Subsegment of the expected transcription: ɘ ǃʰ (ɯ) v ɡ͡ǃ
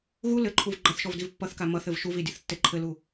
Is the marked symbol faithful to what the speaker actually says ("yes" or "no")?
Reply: no